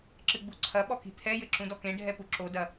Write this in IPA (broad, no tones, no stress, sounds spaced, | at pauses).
ǁ ɨ ɡ͡b u ǀʰ ɐ ɓ ɔ k i̤ t̪ʰ ɛ j ɘ ǁ ũ d ɔ k ẽ ɖʱ ɛ p u ǁ o d ɐ